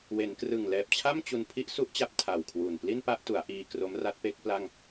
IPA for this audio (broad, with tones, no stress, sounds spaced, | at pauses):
w e˩˦ n k r ɯ˨˩ ŋ l ɛː˨˩ p̚ t͡ɕʰ a˥˩ m t͡ɕ u˧ n pʰ i˦˥ ʔ s u˦˥ ʔ t͡ɕ a˦˥ p̚ tʰ a˨˩ w kʰ w u˨˩ n p l i˥˩ n p a˥˩ ʔ t u˩˦ a̯ ʔ iː˧ k r o˦˥ m r a˦˥ t̚ p e˦˥ k̚ p l a˥˩ ŋ